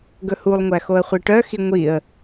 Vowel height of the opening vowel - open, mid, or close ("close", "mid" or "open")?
mid